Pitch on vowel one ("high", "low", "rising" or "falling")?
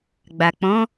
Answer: low